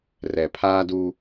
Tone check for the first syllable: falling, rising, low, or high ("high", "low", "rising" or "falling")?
low